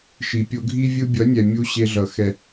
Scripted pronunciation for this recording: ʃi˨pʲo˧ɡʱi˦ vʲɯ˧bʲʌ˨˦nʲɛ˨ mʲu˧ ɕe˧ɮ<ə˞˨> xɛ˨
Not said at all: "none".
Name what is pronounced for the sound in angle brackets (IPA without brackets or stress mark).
ʌ˨